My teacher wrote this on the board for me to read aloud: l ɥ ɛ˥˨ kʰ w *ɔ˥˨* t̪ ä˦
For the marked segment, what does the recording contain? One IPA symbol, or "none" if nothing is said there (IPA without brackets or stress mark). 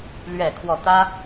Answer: ɔ˥˨